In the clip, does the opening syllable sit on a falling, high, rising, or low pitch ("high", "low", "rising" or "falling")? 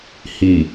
low